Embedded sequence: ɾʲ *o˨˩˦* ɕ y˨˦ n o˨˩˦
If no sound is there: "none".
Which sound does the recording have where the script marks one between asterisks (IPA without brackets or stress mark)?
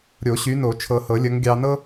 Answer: o˨˩˦